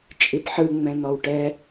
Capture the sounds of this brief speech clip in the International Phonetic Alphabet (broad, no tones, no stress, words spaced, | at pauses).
t͡ʃʼipħɯ ŋ͡mɛ̃n̪ɔwʈɛ